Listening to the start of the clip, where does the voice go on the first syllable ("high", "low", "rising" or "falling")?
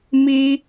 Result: high